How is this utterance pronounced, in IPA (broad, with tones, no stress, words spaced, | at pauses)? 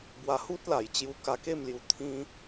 bwa˧hu˦t̚la˨˩j t͡ɕju˧ka˧ ke˥˧mlju˧ t̪ʰĩ˦